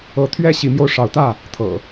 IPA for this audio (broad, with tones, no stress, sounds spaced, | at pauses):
ɤ˨˦ t̪ʰ ɥ ɛ˦ ɕ i˨˦ m j o˧ ʊ̯ ʂ ɑ˨˦ ʊ̯ t̪ ä˥˨ | t̪ʰ ɤ̰˨˩